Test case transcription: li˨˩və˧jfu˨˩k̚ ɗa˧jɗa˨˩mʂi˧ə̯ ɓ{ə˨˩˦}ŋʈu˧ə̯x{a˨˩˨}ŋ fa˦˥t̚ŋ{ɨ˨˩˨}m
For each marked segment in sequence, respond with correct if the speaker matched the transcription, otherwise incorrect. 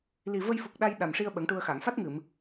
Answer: correct, correct, correct

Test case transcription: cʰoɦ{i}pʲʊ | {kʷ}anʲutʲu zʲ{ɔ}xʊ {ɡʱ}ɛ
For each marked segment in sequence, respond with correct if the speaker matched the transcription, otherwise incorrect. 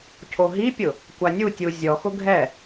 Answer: correct, correct, correct, correct

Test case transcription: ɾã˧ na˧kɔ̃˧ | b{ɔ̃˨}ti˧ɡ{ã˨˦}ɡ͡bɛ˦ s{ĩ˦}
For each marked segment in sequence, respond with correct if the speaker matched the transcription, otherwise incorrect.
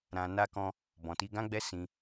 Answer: correct, incorrect, correct

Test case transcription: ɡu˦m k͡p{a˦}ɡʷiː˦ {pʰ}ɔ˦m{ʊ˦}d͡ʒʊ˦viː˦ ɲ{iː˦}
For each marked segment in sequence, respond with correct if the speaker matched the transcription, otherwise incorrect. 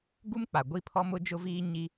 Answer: incorrect, correct, correct, incorrect

